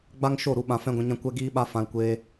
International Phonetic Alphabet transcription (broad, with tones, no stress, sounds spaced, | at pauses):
ɡ͡b a˦ ŋ ʃ o˦˨ ɾ u˧ ɓ ã˧ f ɛ̃˦ ɡʷ ɛ̃˧ ɲ ã˦ kʷ ɛ˦ ɡ iː˦ ɓ a˦ f ã˧ l kʷ eː˧